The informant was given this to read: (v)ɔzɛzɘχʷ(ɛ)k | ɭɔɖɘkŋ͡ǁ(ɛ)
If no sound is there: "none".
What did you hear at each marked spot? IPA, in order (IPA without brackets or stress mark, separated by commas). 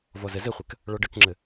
v, ɛ, ɘ